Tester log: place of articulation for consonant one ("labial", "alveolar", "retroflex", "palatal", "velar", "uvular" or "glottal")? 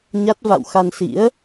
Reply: palatal